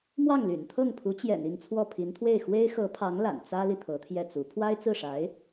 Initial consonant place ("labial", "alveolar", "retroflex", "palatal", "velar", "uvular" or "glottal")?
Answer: labial